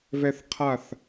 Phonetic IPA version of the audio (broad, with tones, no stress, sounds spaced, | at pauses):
v ɛ˦ θ qʰ a˦˨ θ